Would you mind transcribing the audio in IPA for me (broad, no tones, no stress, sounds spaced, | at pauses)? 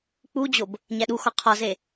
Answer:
k͡p u d͡ʑ o b | ɲ æ ɗ u x ɒ qʰ ɒ z e